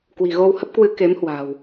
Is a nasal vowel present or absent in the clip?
absent